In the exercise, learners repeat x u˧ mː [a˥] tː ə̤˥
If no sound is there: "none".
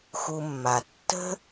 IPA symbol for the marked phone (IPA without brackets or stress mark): a˩